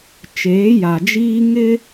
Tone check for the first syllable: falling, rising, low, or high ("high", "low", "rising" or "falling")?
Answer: rising